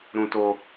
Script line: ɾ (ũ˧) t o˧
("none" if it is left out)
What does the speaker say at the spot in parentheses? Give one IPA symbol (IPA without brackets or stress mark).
ũ˧